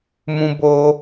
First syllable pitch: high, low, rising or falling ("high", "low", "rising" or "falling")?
high